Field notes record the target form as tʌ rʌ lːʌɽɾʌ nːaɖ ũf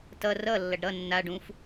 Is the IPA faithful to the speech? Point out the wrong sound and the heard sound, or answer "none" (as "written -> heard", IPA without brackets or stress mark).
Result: ɽ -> ɖ